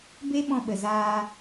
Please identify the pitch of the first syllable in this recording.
high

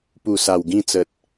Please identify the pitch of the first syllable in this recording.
low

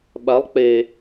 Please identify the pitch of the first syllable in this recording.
rising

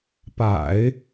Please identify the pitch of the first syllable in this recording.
low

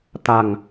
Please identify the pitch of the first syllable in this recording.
low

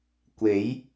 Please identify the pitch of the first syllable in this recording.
rising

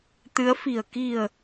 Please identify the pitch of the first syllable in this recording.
rising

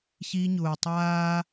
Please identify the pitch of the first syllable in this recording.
high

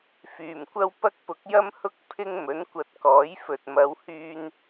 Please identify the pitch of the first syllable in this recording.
low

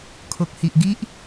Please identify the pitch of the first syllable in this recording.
low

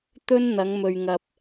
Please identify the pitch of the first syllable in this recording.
high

